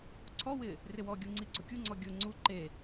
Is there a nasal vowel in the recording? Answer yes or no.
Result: no